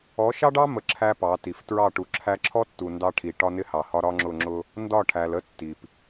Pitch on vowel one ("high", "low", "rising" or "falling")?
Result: rising